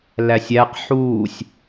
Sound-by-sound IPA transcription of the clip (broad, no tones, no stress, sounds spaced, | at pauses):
l æ sʲ æ q ħ uː sʲ